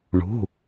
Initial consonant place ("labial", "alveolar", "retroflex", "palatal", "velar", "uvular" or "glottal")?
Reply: retroflex